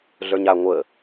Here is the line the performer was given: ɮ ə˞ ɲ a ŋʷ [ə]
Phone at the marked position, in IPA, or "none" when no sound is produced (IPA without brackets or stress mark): ə